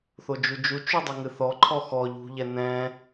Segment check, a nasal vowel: present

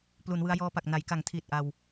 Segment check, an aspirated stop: present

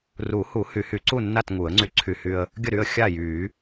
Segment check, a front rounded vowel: present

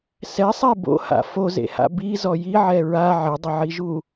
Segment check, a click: absent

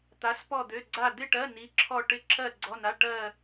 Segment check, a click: present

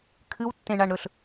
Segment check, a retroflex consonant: present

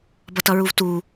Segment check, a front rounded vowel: absent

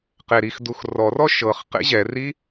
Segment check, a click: absent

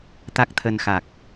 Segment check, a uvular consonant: absent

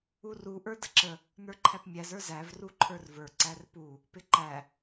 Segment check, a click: present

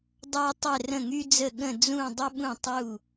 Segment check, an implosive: present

